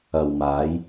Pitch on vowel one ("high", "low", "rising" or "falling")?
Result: low